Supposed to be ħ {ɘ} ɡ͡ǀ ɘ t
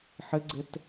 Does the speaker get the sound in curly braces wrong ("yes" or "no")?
no